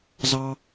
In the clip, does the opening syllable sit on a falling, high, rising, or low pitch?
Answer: high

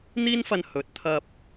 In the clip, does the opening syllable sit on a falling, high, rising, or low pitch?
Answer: high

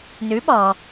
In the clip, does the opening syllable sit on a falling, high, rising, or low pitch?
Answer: rising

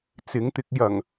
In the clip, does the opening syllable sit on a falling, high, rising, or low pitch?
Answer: rising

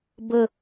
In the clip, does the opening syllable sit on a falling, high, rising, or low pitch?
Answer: low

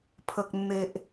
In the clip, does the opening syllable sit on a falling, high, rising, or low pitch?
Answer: low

